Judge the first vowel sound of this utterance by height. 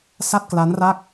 low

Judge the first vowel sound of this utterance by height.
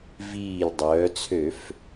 high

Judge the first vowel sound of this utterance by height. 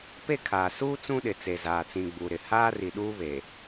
mid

